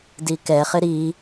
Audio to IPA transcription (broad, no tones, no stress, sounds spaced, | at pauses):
d i k ɛ χ ɪ ɾ i